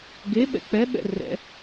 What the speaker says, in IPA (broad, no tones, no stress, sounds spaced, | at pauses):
ɡ e ɓ ɛ̰ k͡p ɛ ɓ ɛ̰ r ɛ̰